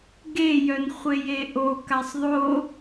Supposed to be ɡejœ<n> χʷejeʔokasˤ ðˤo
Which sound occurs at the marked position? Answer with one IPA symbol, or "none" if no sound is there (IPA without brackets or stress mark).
n